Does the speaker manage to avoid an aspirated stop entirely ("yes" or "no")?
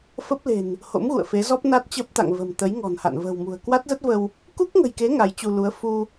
yes